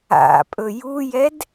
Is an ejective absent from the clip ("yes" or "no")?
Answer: no